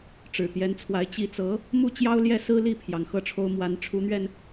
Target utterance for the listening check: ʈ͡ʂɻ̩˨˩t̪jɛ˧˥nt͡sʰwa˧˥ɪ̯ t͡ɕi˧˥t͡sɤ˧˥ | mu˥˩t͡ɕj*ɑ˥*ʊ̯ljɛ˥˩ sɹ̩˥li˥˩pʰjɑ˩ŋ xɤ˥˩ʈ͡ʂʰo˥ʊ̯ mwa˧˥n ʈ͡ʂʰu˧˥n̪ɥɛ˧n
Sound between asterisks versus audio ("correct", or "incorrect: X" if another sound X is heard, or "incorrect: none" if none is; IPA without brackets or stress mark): correct